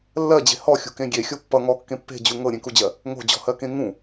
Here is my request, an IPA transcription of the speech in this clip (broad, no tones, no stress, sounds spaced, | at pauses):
lː ɜ d͡ʑ e̤ h ɔ xʲ ṳ k ẽ ɡʲ e xʲ o pː ʌ ŋ ɔ kː ẽ pː e̤ d͡ʑ u ŋ ɤ ɾʲ ẽ k u d͡ʑ ɜ | ŋ o̤ d͡ʑ ɔ̤ h ɜ k ẽ ŋ ũ